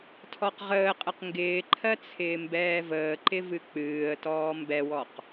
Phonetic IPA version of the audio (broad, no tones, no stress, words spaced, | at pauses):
tʰɔqʁəːqʼəq ŋɡɪːǃʰɜ t͡sʰɪːmbɛːvəːǃɪ vɨk͡pɨːə̯tɔː mbɛwɔq